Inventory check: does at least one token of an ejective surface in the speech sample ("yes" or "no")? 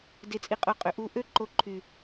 yes